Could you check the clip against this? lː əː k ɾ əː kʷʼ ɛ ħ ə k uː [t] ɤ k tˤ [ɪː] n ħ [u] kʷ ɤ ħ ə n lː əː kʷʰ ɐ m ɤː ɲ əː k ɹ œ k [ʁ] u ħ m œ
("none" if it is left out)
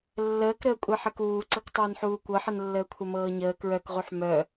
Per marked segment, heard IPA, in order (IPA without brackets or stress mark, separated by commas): ǀ, əː, uː, ʁ